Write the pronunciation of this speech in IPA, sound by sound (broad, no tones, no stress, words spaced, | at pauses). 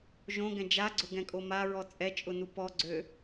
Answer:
ʒõɡɛ̃ d͡ʒaɡ͡ǀʊɡɛ̃kʼo maɹɔ t͡sʼɛt͡ʃʼʊnu pɔɡ͡ǀø